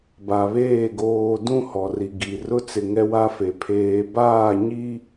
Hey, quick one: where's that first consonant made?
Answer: lips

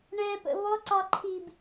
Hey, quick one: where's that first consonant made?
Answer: retroflex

